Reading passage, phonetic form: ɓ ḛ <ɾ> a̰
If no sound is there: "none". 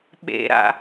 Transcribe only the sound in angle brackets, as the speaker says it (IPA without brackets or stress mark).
ɾ